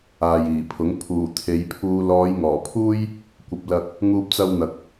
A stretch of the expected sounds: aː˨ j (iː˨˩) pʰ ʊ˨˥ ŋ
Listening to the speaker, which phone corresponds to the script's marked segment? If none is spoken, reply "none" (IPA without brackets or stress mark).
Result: iː˨˩